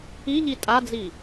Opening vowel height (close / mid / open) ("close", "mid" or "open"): close